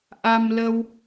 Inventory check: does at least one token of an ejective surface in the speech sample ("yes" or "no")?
no